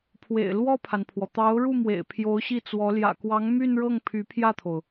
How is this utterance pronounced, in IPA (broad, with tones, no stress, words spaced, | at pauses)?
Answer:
pʰwḛ˨˩ɪ̯lwɔ˥˩pʰa˩npʰwɔ˩ t̪ɑ˧˥ʊ̯ɻu˥˩mwḛ˨˩ɪ̯ pʰjo˧˥ʊ̯ɕi˥˩t͡swɔ˧˥ ljä̰˨˩kwɑ˧˥ŋ my˥˧nɻɤ˥˩ŋ pʰy˧˥pʰjä˥˩t̪ʰo˩ʊ̯